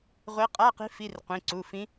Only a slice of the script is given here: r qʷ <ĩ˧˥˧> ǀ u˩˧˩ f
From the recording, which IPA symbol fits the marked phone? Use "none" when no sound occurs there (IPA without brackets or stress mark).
ĩ˩˧˩